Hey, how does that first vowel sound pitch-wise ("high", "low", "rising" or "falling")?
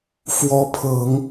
rising